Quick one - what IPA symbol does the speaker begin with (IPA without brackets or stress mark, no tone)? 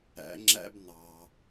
æ̰